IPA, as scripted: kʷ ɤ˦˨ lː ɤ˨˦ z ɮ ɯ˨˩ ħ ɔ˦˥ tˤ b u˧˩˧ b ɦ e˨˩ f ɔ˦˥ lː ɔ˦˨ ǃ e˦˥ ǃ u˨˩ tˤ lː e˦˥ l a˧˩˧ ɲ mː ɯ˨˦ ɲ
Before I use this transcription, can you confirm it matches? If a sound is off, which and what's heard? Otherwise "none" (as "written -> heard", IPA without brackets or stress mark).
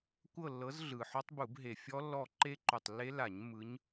f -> fʲ